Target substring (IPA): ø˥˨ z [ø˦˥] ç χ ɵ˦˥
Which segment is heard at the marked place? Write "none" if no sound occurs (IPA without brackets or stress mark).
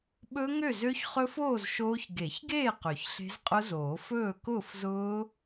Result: ø˦˥